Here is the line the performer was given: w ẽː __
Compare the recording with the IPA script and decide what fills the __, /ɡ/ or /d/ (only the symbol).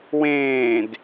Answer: d